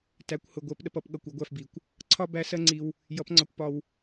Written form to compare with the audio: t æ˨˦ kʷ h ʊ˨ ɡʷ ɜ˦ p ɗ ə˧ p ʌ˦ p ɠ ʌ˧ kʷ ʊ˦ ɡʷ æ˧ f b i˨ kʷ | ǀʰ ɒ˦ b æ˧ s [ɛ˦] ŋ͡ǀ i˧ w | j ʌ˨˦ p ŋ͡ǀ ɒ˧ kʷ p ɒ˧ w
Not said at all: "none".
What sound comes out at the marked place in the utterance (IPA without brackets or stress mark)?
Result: ɜ˦